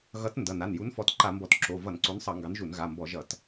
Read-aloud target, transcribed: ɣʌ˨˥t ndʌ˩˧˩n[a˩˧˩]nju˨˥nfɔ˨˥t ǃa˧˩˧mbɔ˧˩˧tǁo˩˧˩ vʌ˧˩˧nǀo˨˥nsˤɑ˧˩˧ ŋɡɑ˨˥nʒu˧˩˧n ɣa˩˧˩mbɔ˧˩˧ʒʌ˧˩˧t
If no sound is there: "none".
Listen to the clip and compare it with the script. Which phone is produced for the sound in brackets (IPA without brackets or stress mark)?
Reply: a˩˧˩